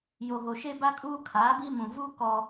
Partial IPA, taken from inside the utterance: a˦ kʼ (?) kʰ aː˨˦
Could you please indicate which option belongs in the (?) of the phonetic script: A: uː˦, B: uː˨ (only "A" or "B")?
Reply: A